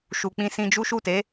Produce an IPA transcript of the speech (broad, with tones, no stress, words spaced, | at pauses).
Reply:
ʃu˨k͡pĩ˧ sĩ˧d͡ʒu˦ ʃu˦˨te˨˦